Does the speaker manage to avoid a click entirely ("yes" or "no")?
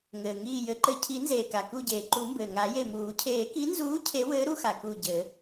no